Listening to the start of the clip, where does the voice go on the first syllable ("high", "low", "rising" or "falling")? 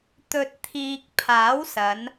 low